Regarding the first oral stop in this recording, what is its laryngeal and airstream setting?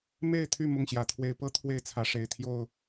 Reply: aspirated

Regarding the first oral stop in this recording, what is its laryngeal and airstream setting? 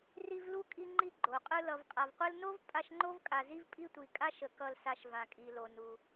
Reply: ejective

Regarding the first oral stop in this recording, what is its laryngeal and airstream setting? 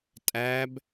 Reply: ejective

